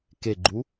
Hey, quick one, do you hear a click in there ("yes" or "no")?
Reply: yes